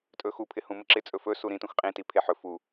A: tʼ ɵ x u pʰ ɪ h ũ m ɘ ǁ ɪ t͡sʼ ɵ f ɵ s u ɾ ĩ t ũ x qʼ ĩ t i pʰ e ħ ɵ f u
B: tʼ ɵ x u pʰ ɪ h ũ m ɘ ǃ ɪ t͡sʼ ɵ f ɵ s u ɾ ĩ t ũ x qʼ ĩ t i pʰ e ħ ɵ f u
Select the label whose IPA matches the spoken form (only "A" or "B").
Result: A